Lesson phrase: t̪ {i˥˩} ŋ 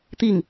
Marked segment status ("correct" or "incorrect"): correct